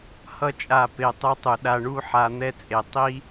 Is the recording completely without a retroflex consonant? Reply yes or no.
no